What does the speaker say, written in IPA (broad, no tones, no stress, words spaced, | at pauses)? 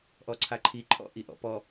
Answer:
ʔɔǀʰaǃʰi ǃʰɔ̰ʔiʔɔ̰pɔ